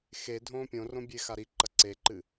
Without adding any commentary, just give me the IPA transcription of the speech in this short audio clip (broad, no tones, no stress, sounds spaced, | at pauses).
x e dʱ õː pʲ õ r õ bʲ e x a ɾ i ǃ ɐ ǀ e ǃ ɨ